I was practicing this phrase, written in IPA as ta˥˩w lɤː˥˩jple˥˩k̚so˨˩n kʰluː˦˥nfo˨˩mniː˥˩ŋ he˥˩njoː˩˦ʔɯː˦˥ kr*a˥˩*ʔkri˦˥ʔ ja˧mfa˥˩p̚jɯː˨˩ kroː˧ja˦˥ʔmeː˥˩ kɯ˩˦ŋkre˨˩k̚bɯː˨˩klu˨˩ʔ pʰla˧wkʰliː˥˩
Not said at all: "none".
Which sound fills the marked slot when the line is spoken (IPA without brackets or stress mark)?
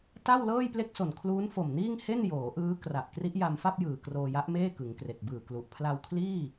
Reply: a˨˩